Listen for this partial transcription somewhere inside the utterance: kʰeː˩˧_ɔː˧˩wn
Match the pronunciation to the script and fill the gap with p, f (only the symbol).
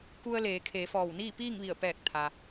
f